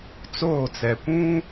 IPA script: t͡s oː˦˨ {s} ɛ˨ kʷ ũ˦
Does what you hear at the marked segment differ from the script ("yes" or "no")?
yes